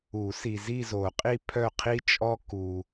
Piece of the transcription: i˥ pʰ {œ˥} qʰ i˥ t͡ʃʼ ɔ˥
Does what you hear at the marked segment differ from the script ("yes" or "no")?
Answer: yes